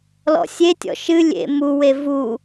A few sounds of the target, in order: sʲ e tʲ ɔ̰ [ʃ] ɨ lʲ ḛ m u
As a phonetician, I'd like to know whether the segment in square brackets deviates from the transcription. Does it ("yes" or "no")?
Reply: no